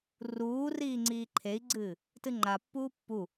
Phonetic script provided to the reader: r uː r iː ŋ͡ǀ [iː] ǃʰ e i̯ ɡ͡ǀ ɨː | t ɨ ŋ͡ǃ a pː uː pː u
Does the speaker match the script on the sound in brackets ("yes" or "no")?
yes